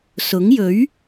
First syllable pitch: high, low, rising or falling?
rising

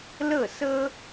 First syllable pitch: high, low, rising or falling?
falling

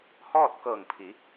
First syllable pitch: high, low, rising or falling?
falling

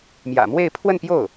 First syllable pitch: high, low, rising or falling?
low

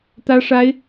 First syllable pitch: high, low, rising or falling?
high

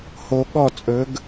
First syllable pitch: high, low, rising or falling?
low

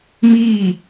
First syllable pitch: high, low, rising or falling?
falling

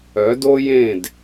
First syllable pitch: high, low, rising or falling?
rising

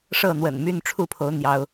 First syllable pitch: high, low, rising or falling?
falling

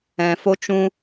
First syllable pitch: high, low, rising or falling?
low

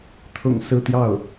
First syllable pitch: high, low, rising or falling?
low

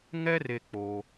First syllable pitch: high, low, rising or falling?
high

